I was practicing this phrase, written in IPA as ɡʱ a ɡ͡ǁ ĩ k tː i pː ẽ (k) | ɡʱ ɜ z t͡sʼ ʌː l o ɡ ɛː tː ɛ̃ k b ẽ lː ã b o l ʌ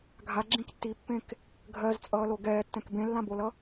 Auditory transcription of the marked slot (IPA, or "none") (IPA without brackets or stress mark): k